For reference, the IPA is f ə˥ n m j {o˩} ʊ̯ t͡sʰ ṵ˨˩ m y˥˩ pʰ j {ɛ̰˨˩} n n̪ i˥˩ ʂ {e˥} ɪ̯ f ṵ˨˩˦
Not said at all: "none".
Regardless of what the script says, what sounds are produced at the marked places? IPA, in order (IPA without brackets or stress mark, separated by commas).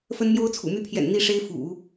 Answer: o˥, ɛ̰˨˩, e˥